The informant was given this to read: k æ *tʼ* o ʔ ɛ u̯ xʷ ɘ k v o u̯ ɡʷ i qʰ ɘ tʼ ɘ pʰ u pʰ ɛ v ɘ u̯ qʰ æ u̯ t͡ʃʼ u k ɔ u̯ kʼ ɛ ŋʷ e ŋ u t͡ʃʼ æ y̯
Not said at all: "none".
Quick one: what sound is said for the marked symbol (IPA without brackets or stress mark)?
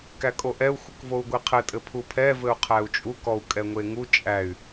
kʼ